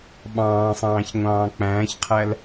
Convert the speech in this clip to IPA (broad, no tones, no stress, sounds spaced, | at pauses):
ɓ ɑ̃ː sˤ ɑ̃ː ç ŋʷ ɑ̃ː k͡p æ̃ː ç qʰ æ l